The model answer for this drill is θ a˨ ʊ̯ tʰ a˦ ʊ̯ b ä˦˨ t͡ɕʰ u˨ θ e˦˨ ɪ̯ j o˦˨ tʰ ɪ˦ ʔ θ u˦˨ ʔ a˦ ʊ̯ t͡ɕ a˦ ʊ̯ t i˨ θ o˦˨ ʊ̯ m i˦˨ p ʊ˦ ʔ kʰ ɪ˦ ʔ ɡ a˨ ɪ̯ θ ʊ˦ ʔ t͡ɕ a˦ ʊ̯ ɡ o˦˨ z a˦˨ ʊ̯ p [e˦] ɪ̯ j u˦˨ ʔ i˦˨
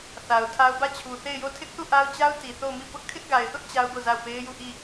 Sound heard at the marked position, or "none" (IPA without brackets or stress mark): e˦